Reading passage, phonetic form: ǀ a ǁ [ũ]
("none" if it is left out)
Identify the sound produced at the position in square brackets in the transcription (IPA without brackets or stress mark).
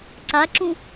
ũ